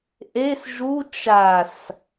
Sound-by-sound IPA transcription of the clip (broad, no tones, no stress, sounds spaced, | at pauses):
ʔ e s ʒ u t͡ʃ a s